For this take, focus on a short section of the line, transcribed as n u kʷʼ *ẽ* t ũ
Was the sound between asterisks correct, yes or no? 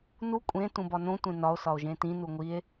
yes